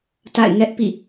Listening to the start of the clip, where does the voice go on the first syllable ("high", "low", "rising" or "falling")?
falling